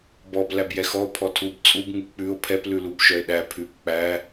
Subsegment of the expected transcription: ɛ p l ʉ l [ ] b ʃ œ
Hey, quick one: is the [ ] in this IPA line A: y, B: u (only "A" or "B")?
B